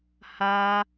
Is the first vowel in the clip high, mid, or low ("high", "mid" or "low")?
low